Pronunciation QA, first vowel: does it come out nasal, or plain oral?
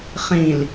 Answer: nasal